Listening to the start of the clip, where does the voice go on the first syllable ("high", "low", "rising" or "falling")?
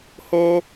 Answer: high